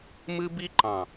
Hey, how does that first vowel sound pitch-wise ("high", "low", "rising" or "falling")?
high